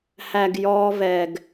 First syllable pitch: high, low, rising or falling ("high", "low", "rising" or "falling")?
low